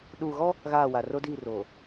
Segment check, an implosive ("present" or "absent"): present